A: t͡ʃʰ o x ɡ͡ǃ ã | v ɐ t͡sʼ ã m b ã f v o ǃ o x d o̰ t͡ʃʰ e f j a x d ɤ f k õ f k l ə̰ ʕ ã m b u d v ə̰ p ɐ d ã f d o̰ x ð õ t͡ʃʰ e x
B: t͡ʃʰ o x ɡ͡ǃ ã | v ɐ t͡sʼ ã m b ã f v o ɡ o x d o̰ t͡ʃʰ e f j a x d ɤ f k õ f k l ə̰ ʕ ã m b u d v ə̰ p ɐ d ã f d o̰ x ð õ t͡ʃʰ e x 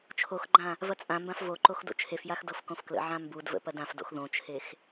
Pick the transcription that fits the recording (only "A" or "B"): A